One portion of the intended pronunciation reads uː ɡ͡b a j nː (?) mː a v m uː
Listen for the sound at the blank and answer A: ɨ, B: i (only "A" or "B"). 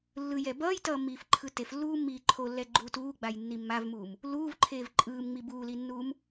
B